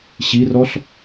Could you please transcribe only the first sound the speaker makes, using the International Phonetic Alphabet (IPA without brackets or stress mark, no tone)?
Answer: ɕ